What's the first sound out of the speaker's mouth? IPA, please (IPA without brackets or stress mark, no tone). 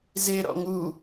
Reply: z